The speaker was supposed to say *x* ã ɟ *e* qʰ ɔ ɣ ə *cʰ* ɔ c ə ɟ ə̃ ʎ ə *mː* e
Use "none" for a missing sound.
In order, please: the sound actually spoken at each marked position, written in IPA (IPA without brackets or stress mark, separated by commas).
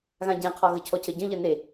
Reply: ɣ, ẽ, cʰ, n